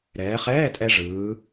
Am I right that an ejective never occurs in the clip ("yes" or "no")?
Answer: no